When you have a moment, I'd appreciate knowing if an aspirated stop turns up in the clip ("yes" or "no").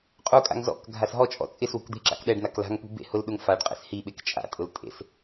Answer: no